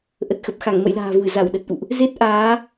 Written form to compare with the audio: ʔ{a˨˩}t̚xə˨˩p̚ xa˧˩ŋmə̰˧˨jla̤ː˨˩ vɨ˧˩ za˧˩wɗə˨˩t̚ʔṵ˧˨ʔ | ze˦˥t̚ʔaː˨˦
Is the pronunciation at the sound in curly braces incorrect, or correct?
incorrect